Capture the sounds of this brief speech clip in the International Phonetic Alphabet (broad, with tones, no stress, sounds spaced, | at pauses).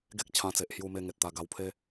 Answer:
ɡ e˦ k̚ t͡ɕʰ ã˧ t͡s e˨ ʔ h j u˧ m e˧ ŋ e˨ t̚ t̪ a˧ ɡ a˧ w pʰ e˦